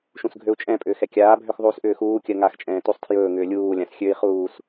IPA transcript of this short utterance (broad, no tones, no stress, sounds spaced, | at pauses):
ʃ ũ s ɡʱ ø u̯ t͡ʃʼ ɛ̃ pʼ ʏː x ɛ kʲ aː bʱ ø x ðˤ uː s ʔ ʏː x uː kʲ ɜ ŋ a x t͡ʃʼ ɛ̃ː t u sˤ tʰ j ɵː ŋ ʏː lʲ uː lʲ ã s xʲ ø i̯ χ uː s